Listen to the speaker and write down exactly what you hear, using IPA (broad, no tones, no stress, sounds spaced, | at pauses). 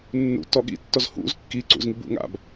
nː ṵ t ɔ ɠ ḭ tː ɔ z h ṵ z kː i ǀ ṵ z ŋ i b ṵ ŋ a̰ b